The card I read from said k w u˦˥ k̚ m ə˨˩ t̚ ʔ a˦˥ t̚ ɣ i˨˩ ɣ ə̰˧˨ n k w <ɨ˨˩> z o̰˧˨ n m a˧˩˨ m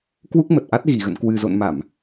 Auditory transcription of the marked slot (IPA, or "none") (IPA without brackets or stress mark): ɨ˨˩